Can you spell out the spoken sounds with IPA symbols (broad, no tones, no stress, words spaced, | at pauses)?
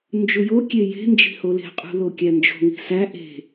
nd͡ʒujokʲe je̤ nd͡ʒi̤hole̤qʼṳ lokʲænd͡ʒo̤ ŋi̤sæ ʔe̤